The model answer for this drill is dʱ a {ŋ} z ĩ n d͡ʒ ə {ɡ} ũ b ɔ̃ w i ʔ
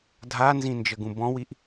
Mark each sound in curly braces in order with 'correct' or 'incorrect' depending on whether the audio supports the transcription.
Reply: incorrect: n, correct

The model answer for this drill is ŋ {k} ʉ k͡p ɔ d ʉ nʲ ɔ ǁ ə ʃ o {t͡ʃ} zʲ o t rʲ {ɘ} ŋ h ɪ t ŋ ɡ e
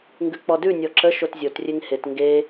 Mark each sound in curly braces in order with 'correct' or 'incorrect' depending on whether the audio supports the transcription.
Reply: incorrect: ɡ, incorrect: t, incorrect: e

